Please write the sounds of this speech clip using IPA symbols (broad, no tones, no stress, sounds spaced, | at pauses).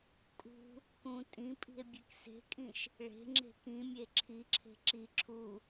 kʼ ṳ | k ũ tʼ ĩ pʼ i̤ e̯ bʲ e k s e̤ kʼ ĩ ʃ | ɭ e̤ ŋ͡ǁ e̤ k ĩ mʲ e ǁʰ i ǁʰ e̤ ǁ i ǁʰ u